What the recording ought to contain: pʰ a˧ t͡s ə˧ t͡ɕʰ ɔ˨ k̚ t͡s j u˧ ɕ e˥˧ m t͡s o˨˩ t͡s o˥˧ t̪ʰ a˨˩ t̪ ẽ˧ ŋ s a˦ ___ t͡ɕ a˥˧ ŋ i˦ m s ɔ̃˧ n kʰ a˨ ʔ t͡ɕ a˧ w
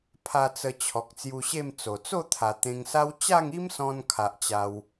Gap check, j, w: w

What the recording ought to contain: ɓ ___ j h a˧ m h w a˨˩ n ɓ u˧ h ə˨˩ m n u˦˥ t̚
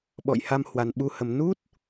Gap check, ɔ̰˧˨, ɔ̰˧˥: ɔ̰˧˨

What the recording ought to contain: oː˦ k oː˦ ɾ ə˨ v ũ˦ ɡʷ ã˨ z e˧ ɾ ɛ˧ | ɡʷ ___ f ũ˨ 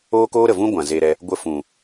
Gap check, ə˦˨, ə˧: ə˧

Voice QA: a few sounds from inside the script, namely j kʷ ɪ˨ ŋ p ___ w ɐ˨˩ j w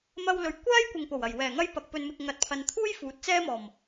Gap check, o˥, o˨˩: o˨˩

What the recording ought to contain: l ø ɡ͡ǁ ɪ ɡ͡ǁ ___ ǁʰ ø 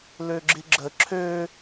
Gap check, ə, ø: ə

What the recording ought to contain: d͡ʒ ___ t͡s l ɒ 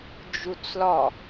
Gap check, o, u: u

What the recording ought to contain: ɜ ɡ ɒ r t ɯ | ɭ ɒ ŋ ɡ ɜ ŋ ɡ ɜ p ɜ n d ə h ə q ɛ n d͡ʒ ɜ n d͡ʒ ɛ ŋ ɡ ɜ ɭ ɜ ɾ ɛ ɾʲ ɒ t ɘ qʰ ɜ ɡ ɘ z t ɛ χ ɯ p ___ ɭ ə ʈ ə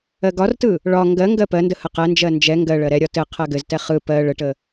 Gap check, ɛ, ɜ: ɜ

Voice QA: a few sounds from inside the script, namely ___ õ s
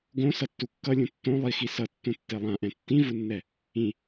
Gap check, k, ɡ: ɡ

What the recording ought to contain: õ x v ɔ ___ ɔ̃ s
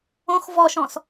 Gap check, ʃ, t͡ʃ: ʃ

